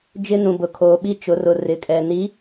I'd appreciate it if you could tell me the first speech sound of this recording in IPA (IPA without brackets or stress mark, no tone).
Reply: d͡ʒ